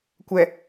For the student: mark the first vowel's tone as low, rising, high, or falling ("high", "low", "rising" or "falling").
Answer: low